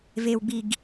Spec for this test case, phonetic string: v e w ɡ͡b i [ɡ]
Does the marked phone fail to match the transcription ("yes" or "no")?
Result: no